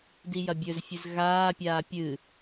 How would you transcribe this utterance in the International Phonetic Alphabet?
d i j ɐ bʲ ɵ z fʲ ɨ z ɣ aː pʲ aː pʲ ɨ

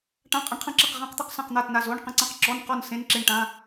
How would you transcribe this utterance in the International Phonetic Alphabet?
ʈ ã˧˥˧ qʼ ɐ˧˥˧ ɳ qʰ ɐ̃˥˨ ǁ ɐ˥˨ q ʁ ã˧˥˧ q t̪ e˥˨ q s ã˥˨ q n̪ a˥˨ t n a˥˨ z o˧˥˧ ɳ q ə̃˥˨ ǀ ã˥˨ q ǁ ɔ˧˥˧ n q ɔ˥˨ n s ẽ˧˥˧ n ǁ e˥˨ ɳ ʈ ã˧˥˧

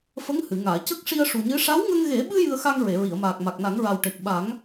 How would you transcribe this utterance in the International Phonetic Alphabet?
f ə˧˥ ŋ h ɨ˨˩˨ ŋ aː˨˩˨ c ə˦˥ k̚ ʂ i˧ ə̯ ʂ u˨˩ ɲ ɨ˧˥ ʂ a˧˥ w ŋ ə˧ ŋ ɣ e˨˩˦ ɓ ɨ˧ j ɨ˧ ə̯ x a˧ ŋ ɹ e˨˩˨ ɹ i˨˩˨ ə̯ m aː˨˩ k̚ m a˨˩ k̚ n a˨˩˦ ŋ ɹ a˨˩ w ʈ e˨˩ k̚ ɓ a˨˩˦ ŋ

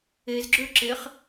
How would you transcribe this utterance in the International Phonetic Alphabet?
e z ɡ͡ǁ ø ǁ e χ

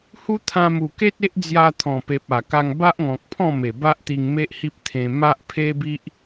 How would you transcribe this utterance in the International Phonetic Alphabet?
h u˦ t̪ʰ ã˧ m u˨˩ k e˦ t̚ e˦ ʔ d͡z j a˧ t̪ʰ ɔ̃˨˩ p e˨ p̚ a˨˩ k a˧ ŋ b a˦ ʔ ŋ ɔ̃˨ k̚ pʰ ɔ̃˥˧ m e˨˩ b a˦ ʔ t̪ i˧ ŋ m e˦ ʔ h i˦ p̚ t̪ʰ ẽ˧ m a˦ ʔ pʰ e˦ b i˦ ʔ

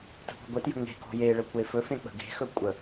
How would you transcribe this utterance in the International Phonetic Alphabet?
t ə̤ p ɔ̤ ɡʷ e t j ə̤ ŋ e̤ k ɔ̤ j e ɭ ə kʷ e f ɵ f ẽ k͡p ə̤ ɡ e̤ x ɵ kʷʼ ə

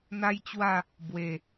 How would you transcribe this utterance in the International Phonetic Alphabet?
n̪ a˦ j t͡ɕ w a˥˧ | b w e˨˩

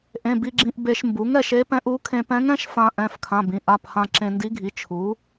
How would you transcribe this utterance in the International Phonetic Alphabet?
ʔ ẽ˩˧˩ b i˧ ɡ͡ǁ ĩ˧ ʔ b e˧ ʃ m b u˩˥ ŋ ɛ˧ ʃ e˧˥ p ɛ̃˧˥ ʔ u˩˥ kʰ ẽ˧ p ɛ̃˧˥ ŋ ɛ̃˧˥ ʃ f ã˧ ʔ ɛ̃˩˧˩ f kʰ ã˩˧˩ b ĩ˧ ʔ a˩˧˩ p h ã˧ ǁ ẽ˧ n d i˧˥ ɡʱ i˩˥ t͡ʃʰ u˩˥

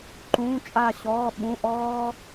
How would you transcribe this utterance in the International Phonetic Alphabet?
ǃ ũː˧˥˧ t͡ʃʼ a˦˨ ɕ ɔː˧˥˧ ɓ ũ˧˥˧ ʔ ɔː˥

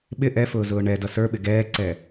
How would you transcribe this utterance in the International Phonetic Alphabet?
ɓ ɪ ʔ ɛ f ʊː z ʊː ɳ ɛ d ʌ s ə˞ ɓ ɪ ɡ ɛː ǀ ɛ

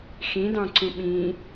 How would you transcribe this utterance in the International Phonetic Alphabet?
x ĩ d ɑ̃ ǀ ũ ɓ ĩ

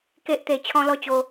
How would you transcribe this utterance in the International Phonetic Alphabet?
k e˨ ʔ t̪ e˨˩ t͡ɕʰ ɔ̃˧ l ɔ˧ t͡ɕ o˧

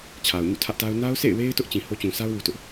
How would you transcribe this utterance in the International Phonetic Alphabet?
t͡ɕʰ a˨ ʊ̯ ɲ ṵ˦˨ tʰ ä˦ ʔ t a˦ ʊ̯ n a˦ ʊ̯ sʰ ḛ˦˨ ɪ̯ w e˦ ɪ̯ t ʊ˦ ʔ t͡ɕ ĩ˨ h o˦ t͡ɕ ũ˨ s a˦ ʊ̯ w u˦ t ʊ˦ ʔ

